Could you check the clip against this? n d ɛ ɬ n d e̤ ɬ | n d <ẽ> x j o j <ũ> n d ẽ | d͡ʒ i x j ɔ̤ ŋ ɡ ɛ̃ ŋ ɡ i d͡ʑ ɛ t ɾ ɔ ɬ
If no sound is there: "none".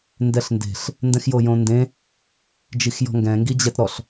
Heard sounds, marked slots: ɛ̃, õ

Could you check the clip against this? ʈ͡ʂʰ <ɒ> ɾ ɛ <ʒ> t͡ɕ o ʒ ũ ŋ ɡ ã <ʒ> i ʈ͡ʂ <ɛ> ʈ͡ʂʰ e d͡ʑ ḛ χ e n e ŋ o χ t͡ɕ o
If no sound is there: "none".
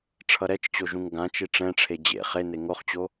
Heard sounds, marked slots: ʌ, t͡ʃ, t͡ʃ, ɛ̃

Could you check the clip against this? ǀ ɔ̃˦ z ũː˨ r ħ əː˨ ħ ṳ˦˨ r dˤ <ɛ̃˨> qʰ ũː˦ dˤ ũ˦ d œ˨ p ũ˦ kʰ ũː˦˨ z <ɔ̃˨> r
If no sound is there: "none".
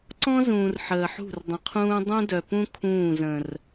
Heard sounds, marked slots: ə̃˨, ə̃˨

